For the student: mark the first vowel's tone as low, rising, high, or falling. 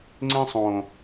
high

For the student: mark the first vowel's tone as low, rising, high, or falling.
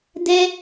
high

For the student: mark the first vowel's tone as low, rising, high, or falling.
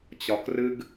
low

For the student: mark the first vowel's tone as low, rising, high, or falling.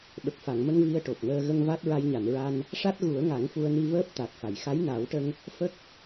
low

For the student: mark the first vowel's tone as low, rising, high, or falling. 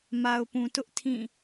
low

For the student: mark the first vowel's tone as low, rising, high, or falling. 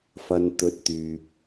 low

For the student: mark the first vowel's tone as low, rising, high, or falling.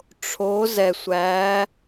rising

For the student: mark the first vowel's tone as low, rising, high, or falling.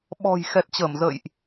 low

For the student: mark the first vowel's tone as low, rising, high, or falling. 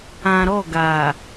low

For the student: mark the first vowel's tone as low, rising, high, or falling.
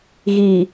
low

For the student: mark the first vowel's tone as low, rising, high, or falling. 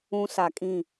high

